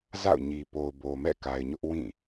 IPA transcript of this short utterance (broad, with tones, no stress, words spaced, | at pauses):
za̰˦˨ʊ̯ɲi˨ po˨ʊ̯bo˨mɛ̰˦˨ ka˨ɪ̯ɲʊ˦ʔ wĩ˦˨